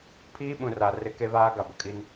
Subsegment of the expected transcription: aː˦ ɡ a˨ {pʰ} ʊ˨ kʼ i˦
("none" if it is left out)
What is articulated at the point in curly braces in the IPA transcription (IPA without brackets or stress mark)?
b